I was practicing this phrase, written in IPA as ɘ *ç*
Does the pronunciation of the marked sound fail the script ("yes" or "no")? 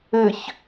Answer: no